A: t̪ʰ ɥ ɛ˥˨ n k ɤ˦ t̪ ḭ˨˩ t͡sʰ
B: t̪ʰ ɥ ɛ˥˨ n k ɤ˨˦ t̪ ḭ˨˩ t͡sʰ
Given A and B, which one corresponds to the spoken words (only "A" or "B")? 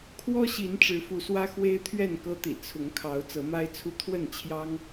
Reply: A